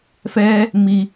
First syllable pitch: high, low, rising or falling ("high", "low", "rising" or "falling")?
high